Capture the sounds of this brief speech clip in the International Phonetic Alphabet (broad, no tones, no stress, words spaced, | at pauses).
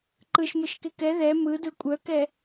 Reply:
ǃɯʃmɯʃke kɛ ðɛ mɯdɯ kʷʼœkɛ